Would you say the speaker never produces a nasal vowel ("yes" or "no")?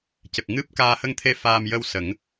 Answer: yes